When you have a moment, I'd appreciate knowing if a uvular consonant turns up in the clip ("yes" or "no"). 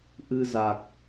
no